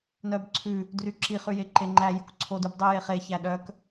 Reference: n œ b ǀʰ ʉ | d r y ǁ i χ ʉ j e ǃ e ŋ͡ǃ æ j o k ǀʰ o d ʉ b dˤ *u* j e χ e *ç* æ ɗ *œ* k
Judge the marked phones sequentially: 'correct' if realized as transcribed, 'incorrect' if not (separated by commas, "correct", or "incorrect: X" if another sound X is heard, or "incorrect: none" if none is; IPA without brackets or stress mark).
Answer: incorrect: y, correct, correct